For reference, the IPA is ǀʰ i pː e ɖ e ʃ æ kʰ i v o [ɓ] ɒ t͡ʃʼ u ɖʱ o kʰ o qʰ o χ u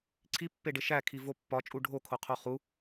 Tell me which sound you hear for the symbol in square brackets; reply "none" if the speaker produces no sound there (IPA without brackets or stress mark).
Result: pː